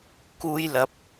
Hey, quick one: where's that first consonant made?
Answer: velum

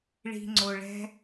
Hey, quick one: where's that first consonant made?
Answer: retroflex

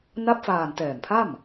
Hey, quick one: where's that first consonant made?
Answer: tongue tip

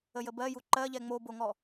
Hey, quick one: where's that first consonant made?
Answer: palate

